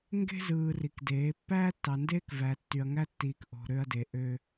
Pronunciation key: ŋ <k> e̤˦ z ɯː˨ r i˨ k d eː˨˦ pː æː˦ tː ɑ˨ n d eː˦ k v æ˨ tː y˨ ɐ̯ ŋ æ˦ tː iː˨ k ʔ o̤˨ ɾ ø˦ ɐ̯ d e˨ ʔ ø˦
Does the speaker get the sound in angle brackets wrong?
yes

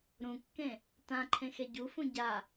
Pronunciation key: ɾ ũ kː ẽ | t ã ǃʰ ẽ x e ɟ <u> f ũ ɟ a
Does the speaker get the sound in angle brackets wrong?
no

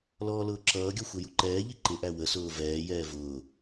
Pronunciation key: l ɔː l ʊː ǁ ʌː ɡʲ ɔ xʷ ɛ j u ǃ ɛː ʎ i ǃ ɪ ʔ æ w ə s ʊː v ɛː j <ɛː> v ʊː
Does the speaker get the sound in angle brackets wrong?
no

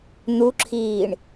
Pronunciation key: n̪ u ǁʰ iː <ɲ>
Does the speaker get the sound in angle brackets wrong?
yes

